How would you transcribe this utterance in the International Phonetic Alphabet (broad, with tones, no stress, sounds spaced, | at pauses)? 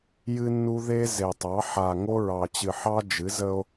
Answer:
j ɨ˦ nː u˦ ð e˦ z e˨ tˤ ɑ˨˦ ħ a˨ ŋ o˦ ɹ ɑ˨ t͡ɕ ɨ˨ ħ ɑ˦ d͡ʒ ɨ˨˦ z ə˦ o̯